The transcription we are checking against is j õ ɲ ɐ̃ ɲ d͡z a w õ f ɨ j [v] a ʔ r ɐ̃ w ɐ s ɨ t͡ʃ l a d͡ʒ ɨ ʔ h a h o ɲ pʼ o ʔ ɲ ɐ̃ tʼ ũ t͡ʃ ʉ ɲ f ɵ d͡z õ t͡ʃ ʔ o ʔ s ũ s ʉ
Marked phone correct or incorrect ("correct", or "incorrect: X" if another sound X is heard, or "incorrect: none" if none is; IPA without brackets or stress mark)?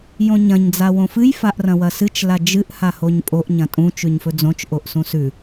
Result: incorrect: f